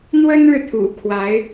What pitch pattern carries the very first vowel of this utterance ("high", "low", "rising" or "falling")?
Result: high